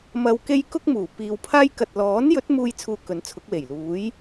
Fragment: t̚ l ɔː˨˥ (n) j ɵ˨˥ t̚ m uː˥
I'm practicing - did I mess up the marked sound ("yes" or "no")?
no